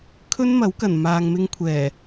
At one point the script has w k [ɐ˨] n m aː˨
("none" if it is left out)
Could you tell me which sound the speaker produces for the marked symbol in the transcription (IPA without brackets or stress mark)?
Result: ɐ˨˩